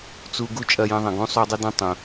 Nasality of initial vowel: oral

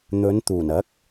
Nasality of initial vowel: oral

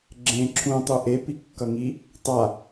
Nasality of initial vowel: nasal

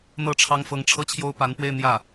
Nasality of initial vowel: oral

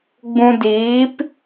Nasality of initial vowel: nasal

